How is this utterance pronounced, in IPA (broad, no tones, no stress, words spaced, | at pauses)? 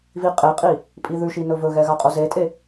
viqʼeqʼi | pʼiðʉʃi nɵvɵɣɛ ɣaqʼozetʼe